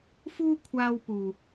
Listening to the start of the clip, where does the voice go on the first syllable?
high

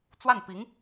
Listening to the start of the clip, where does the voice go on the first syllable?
falling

